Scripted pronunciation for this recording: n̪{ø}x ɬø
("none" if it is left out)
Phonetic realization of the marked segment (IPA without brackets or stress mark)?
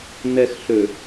ɛ